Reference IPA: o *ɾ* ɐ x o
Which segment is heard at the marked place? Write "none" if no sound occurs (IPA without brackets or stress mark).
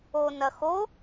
n